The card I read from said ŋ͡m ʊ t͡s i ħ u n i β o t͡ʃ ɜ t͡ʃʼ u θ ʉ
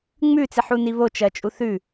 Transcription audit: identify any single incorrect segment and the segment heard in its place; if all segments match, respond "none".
ʊ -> ʉ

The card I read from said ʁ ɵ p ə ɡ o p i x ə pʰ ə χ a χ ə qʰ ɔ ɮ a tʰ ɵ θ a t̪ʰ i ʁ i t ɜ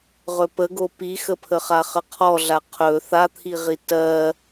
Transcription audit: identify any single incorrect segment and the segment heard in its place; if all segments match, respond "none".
tʰ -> qʰ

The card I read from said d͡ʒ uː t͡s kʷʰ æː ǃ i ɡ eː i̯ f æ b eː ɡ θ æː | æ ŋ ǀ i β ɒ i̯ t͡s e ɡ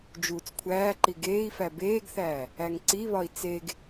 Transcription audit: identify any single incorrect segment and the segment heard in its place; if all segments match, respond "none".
none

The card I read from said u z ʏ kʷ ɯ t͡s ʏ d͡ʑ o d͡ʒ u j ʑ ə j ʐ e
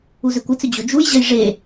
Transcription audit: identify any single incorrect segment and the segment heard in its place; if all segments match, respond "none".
none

